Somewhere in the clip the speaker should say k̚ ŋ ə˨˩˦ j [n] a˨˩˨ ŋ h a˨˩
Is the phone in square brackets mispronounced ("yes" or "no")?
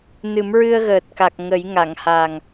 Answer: yes